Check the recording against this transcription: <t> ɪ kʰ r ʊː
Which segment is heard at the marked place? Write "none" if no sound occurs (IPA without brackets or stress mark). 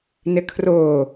n